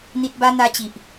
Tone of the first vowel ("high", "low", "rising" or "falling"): low